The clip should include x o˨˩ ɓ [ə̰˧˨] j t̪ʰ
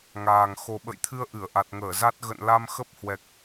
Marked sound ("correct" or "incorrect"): correct